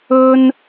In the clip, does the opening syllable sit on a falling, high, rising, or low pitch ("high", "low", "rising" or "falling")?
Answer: high